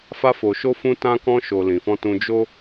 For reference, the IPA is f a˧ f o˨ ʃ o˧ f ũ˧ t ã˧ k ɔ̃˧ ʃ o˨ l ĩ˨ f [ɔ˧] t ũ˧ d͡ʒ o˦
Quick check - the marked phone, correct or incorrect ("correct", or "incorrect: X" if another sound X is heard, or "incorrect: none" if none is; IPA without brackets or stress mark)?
incorrect: ɔ̃˧